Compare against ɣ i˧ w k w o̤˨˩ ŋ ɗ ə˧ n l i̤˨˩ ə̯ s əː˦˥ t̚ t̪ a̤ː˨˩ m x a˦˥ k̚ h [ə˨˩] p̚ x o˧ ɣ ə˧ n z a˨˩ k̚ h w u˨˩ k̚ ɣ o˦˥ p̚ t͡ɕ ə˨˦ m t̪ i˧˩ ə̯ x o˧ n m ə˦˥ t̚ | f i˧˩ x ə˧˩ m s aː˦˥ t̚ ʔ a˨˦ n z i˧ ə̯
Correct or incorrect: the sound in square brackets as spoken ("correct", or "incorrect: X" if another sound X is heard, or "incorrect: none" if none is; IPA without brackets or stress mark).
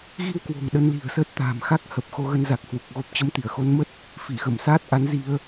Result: correct